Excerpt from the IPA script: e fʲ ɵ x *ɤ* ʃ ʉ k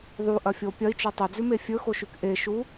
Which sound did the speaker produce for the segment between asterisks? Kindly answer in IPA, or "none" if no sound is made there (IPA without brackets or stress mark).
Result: o